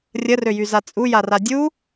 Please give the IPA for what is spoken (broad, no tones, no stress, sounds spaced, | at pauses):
rʲ ə r ø j y z a t͡sʼ u j a r a dʲ u